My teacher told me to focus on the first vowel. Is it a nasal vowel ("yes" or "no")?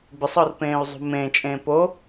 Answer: no